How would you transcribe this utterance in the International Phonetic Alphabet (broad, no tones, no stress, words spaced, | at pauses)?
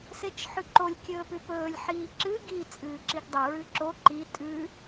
set͡ʃħʉǃolʲ kʲɵːpʉpɵːlʲ ħiːǁɨ ɡi t͡sʼɨːǁiɡdˤe ɹɨǁo ǃi tʼʉ